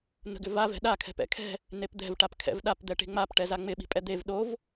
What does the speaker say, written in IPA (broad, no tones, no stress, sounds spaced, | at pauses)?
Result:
n̪ ə̤ ɡ ʏ v a v ɛ̤ ɗ a kʰ ɛ̤ p ɛ̰ kʰ ɛ̤ | n e p d̪ ɛ̤ v ʈ a p kʰ ɛ̰ v ɗ a p d̪ ɛ ʈ e̤ ŋ͡m a p ʈ ɛ z a ŋ͡m ɪ ɓ i̤ pʼ ɛ d̪ e v ɗ o v